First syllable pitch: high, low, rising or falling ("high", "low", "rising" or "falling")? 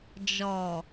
low